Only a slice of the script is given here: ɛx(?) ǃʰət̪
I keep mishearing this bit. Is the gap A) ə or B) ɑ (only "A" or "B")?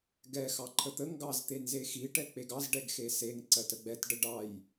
B